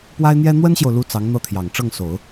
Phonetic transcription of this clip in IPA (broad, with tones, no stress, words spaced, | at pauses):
pwa˥ɪ̯n̪jɛ˥ n̪wə˥nɕjo˨ʊ̯lu˧˥ t͡sɑ˧˥ŋn̪ɤ˥˩t̪ʰjɑ˨˩ŋ ʈ͡ʂɤ˥˩ŋso˨˩˦ʊ̯